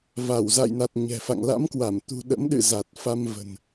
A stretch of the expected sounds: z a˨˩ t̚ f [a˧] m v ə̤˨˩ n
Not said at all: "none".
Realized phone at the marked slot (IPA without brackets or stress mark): a˧